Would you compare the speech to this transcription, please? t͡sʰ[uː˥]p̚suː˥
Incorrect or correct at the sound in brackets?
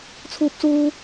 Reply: correct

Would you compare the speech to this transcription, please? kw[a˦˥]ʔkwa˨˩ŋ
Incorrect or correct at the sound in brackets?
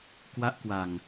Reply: correct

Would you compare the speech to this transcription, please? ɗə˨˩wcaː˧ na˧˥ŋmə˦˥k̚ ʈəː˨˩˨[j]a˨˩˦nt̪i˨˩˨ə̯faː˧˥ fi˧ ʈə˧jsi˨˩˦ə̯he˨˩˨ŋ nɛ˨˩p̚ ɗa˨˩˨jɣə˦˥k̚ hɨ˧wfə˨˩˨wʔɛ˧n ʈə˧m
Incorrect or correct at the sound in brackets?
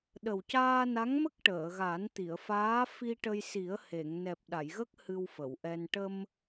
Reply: incorrect: ɣ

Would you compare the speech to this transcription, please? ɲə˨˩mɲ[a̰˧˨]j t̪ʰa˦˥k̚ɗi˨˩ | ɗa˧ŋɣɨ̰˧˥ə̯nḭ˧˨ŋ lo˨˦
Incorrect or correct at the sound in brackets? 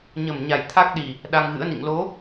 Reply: incorrect: a˨˩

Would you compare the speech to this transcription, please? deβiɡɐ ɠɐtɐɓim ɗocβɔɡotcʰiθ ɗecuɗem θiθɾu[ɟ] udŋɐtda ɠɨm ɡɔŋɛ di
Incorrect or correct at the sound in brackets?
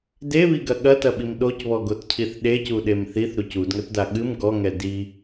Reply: incorrect: c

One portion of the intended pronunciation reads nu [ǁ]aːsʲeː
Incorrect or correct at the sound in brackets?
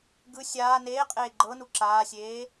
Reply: correct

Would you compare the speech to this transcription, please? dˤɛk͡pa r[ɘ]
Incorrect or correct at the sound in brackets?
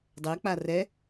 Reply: incorrect: ɛ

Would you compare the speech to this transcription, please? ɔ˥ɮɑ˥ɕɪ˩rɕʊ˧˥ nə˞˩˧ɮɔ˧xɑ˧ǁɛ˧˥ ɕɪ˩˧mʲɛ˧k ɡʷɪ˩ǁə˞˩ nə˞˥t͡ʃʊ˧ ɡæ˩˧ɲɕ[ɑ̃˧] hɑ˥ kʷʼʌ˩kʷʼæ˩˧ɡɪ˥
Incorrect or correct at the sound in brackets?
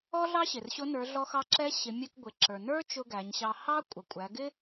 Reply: incorrect: ɑ˧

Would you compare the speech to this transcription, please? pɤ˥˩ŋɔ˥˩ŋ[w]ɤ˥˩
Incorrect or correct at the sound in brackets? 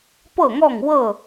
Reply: correct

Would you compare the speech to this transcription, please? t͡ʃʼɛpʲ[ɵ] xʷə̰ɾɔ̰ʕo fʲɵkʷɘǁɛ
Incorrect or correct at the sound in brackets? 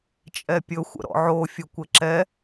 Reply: correct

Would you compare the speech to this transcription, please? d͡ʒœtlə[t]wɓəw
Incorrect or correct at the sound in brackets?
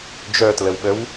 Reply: incorrect: none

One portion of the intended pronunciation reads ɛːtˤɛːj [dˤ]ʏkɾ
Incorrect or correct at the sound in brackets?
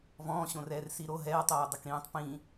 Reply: correct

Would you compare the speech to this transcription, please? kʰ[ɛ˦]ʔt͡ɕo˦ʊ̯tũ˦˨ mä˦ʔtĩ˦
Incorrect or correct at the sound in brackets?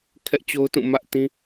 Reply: correct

